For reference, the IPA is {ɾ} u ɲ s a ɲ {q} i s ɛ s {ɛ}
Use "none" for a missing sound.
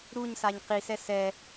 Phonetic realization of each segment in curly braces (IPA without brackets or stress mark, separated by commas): ɾ, q, ɛ